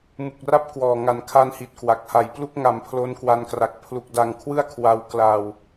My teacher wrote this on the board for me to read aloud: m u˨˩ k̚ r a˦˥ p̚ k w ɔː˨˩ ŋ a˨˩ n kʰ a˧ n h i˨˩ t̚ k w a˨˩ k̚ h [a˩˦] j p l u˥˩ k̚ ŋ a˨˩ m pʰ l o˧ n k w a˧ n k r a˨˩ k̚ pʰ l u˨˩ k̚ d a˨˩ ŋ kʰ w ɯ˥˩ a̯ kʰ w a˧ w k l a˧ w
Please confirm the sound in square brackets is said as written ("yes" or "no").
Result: no